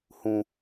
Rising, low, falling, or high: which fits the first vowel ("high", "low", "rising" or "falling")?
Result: low